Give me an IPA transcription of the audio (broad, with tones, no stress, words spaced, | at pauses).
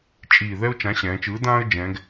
t͡ʃʼiː˨˩ ðɛ˥ʊ̯t͡ʃã˨˥ɕɛ̃ː˩˧t͡ʃɯː˨˥ dãː˥ə̯d͡ʒɛ̃ː˩˧ɡ